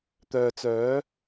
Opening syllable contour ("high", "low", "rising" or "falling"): low